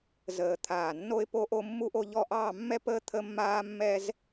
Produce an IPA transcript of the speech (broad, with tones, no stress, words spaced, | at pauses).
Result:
zəː˧˩ t̪ʰaː˧˩ nːo˥ɪ̯po˥ʔo˥ mːu˥ʔo˥ʎɔ˥˧ ʔɑː˥˧mːɛ˥pəː˥ t̪ʰə˥mːaː˥mːɛ˥z